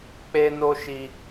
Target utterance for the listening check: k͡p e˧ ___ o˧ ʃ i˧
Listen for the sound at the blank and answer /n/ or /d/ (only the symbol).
n